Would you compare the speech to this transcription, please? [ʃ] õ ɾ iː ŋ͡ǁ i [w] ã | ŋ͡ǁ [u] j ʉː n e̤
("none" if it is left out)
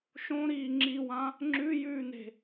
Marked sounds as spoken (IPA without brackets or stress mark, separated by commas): ʃ, w, ʉ